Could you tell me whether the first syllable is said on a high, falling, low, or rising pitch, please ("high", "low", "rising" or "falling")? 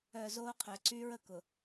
low